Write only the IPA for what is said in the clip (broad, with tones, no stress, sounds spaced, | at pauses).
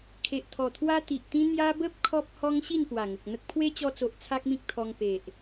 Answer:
kʰ e˨ ʔ t̪ʰ ɔ˨˩ t̪ʰ w a˦ t̪ i˨ ʔ t̪ ĩ˦ n̪ j a˧ b ə˦ p̚ kʰ ɔ˦ p̚ h ɔ˦ ŋ ɕ i˥˧ n p w a˨˩ ŋ ə˨ k̚ n̪ ə˦ k̚ pʰ w e˦ t͡ɕ ɔ˧ t͡s o˨ ʔ t͡sʰ a˦ k̚ m ĩ˦ k̚ t̪ʰ ɔ˧ ŋ p e˨ ʔ